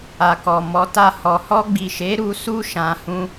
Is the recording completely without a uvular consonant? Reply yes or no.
yes